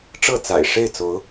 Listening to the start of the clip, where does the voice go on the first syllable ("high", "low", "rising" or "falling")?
falling